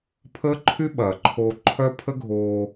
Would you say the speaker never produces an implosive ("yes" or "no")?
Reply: no